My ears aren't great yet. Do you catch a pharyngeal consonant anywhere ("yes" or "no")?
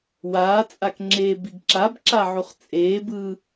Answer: yes